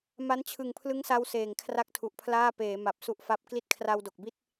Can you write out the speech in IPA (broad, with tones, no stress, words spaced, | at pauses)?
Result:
ma˦˥nt͡ɕʰɯ˨˩ŋpʰlɯ˦˥ŋsa˧w seː˨˩ŋkʰra˥˩k̚tʰu˨˩ʔpʰlaː˥˩ peː˩˦ ma˨˩p̚su˦˥ʔfa˦˥p̚ kli˦˥t̚kʰra˧wdo˨˩k̚bi˥˩t̚